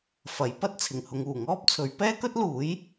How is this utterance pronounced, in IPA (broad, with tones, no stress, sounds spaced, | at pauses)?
f ɐ˨˥ j p ɐ˥ t̚ t͡sʰ ɪ˨˩ ŋ h ʊ˨˧ ŋ uː˨˩ ŋ ɔː˥ p̚ t͡sʰ ɵ˨˥ ɥ p ɛː˥ k ɵ˥ t̚ l uː˨˥ j